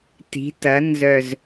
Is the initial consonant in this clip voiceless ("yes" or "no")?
yes